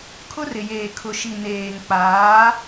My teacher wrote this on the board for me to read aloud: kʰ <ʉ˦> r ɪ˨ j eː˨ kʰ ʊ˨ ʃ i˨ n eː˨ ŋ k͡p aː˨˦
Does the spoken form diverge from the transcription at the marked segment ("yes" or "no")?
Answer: yes